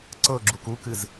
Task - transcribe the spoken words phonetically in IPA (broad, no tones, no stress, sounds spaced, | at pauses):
ǀ ɤ ɡ͡ǁ u k u k ɨ z